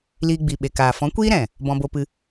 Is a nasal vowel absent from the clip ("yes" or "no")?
no